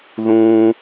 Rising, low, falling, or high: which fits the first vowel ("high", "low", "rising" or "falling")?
high